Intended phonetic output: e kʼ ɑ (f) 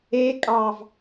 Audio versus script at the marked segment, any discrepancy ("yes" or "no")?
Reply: yes